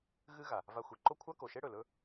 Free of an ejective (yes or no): yes